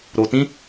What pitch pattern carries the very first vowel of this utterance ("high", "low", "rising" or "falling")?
low